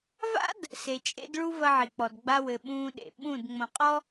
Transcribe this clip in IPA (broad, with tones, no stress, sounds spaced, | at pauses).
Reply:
v a̰˦ d | s e˨ t͡ʃʼ ḛ˦ d ɭ u˦ v ɐ˦ ʕ i˨ k͡p ɔ˨ d ɡ͡b a˦ w ɘ˨ ɓ ũː˦ ɗ ḛ˨ ɓ ũ˦˨ d ŋ͡m õ˨ qʼ ɔ˦